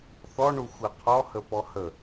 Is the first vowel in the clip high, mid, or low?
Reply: mid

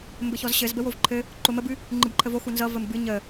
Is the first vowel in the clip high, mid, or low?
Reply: mid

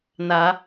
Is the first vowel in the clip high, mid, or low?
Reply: low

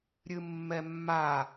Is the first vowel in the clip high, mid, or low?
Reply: high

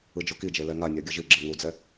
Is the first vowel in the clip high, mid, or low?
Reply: high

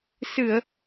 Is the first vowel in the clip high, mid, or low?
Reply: high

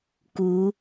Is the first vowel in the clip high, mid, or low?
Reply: high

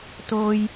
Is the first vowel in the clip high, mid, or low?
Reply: mid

